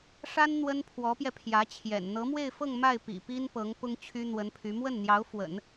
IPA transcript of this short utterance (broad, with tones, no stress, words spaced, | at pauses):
ʂa˥n n̪wə˥npʰwɔ˧˥pjɛ˧ pʰjä˧˥t͡ɕʰjɛ̰˨˩n n̪ɤ˧˥mwe˥˧ɪ̯fɤ˥˧ŋ ma˥˩ɪ̯ pḭ˨˩pi˥npɤ˧˥ŋ pʊ˥ŋt͡ɕʰy˥n̪wə˧˥npʰy˧˥ mwə˥˩nn̪jɑ˧˥ʊ̯fwə̰˨˩˦n